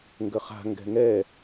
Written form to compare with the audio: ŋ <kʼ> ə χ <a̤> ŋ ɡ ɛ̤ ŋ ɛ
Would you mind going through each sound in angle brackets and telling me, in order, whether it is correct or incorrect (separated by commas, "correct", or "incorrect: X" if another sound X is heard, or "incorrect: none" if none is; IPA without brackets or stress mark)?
incorrect: ɡ, correct